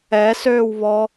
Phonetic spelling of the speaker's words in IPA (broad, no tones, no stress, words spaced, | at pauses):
ɛ søːwβɔ